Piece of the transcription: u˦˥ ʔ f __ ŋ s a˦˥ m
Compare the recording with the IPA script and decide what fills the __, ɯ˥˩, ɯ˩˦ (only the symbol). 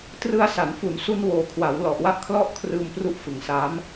ɯ˩˦